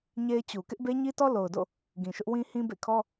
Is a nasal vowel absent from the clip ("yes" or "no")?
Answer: no